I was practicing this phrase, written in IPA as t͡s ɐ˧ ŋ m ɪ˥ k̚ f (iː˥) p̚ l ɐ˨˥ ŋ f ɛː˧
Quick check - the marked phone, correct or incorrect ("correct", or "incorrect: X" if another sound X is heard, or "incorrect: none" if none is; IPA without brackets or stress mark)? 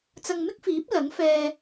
incorrect: iː˨˥